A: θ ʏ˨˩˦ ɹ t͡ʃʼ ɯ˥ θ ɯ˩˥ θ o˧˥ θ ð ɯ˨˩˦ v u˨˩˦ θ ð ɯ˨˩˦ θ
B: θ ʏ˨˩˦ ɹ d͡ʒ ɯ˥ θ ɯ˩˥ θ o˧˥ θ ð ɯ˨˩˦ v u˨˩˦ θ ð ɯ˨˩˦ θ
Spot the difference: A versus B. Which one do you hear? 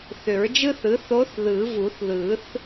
B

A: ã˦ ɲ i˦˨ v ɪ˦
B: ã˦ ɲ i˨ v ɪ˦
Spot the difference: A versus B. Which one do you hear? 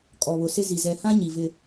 B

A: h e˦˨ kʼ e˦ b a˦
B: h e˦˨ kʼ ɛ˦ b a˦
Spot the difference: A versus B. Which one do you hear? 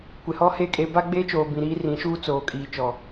A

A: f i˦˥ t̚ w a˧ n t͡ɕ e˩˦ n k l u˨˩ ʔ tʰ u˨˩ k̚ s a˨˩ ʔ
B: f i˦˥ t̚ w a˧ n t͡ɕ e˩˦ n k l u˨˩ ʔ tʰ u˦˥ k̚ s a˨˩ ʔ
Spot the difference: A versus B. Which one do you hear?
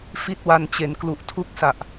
B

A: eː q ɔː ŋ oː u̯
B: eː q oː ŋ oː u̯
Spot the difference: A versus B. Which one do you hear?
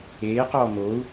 A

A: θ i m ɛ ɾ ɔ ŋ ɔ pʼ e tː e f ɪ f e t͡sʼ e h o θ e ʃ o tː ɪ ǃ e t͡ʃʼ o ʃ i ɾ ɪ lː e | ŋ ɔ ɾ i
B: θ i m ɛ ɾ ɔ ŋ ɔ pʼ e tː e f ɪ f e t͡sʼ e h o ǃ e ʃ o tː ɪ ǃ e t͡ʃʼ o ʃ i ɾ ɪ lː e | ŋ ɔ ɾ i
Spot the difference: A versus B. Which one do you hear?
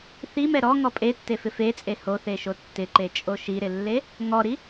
A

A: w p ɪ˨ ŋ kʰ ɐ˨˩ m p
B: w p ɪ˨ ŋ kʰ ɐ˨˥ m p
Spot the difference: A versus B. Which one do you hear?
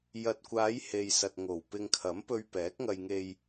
B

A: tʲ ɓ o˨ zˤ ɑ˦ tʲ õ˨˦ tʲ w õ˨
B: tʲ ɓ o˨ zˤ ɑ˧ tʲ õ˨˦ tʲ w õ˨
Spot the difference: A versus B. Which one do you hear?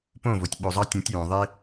B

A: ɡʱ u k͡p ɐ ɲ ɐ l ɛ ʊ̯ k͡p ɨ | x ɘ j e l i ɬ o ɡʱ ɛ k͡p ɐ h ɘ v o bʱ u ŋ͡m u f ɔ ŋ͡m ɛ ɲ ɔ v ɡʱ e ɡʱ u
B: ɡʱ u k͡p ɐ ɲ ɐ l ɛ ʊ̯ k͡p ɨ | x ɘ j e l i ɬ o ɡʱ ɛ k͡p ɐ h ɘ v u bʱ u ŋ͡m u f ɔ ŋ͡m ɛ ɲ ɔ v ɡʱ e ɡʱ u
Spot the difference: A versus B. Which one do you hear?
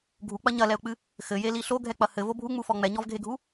A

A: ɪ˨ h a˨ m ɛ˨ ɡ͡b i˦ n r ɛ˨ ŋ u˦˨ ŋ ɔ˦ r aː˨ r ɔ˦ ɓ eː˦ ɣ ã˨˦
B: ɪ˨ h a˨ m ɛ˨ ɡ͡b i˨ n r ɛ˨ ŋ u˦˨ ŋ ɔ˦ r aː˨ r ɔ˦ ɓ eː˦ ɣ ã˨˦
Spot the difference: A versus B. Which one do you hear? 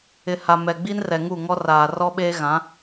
A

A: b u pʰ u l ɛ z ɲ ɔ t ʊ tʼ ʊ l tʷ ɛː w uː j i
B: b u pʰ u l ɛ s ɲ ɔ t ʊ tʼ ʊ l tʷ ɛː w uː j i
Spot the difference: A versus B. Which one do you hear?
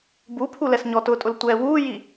B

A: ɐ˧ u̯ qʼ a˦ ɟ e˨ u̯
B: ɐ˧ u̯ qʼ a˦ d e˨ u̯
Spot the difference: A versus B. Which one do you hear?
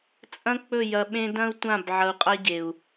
A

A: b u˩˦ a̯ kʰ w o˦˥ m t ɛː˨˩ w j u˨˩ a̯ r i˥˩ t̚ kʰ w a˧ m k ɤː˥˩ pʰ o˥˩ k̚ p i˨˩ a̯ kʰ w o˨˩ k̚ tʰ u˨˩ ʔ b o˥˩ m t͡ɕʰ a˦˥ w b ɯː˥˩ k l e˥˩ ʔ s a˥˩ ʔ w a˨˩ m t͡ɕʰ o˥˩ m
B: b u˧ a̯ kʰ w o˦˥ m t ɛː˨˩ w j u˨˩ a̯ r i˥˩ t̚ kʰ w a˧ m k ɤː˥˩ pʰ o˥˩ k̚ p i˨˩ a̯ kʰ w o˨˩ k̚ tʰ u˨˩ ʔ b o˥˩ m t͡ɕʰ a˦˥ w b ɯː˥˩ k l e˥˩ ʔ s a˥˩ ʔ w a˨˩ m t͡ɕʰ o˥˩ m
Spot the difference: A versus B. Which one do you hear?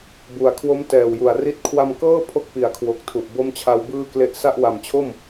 A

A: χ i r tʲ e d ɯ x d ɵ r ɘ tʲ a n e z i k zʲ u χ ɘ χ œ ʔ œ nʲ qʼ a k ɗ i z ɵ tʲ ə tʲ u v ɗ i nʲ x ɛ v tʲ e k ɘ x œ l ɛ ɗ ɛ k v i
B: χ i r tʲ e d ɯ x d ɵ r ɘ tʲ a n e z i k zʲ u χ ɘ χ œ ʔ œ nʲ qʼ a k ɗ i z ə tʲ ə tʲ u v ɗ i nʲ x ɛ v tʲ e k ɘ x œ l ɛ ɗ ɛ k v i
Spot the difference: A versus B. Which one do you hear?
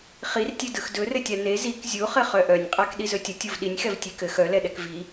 A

